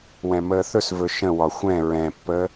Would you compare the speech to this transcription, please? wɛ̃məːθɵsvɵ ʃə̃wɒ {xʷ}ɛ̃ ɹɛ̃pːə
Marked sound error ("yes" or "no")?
no